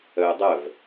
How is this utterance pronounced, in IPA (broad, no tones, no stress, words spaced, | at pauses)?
œjdˤœv